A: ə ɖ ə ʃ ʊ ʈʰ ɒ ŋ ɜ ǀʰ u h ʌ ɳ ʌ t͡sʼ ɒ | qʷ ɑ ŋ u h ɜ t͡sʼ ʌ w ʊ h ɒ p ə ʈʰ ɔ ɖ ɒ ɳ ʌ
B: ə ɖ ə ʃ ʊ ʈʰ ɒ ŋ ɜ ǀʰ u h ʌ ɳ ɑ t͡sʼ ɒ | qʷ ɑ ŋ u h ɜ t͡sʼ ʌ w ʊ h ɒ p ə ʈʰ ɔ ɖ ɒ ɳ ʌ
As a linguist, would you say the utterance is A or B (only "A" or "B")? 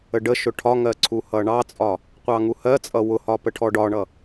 B